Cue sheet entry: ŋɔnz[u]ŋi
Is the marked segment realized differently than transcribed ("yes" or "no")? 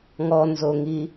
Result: yes